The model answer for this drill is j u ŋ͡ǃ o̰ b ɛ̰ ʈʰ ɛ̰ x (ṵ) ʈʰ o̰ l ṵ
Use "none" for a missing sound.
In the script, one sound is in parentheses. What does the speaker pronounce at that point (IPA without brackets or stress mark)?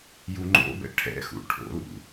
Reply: ṵ